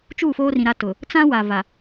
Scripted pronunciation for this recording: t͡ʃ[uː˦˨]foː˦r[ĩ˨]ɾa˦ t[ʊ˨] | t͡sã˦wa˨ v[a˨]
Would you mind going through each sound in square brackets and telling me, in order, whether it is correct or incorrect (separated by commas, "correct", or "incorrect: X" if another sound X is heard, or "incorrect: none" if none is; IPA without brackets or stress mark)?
correct, correct, correct, correct